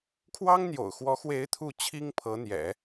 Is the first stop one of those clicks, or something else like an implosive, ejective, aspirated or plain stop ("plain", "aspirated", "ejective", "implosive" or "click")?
aspirated